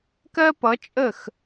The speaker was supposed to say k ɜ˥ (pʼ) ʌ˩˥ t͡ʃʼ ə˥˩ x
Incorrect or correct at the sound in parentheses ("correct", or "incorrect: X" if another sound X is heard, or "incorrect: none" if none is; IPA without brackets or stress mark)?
incorrect: p